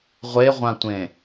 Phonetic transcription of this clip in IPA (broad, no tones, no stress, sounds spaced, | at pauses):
ʁʷ e ʁʷ ã tʷ ẽ